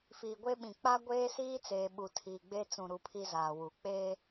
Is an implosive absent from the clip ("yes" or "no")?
no